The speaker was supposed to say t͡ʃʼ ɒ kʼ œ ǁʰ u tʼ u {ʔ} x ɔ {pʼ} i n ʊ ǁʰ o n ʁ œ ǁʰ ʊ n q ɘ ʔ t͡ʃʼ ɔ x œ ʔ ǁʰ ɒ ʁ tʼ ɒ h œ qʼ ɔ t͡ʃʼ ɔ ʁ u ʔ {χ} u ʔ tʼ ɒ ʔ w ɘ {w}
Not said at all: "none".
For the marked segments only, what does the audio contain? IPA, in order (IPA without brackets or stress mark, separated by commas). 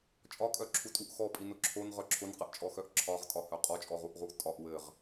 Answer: ʔ, pʼ, ʁ, ʁ